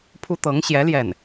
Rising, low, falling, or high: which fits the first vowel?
high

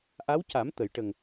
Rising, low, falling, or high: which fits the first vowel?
rising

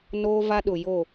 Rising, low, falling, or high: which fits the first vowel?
high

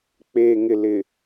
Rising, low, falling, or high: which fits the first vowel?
low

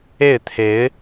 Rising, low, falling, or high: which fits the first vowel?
falling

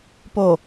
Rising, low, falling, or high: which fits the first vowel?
low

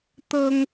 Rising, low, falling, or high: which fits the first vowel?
high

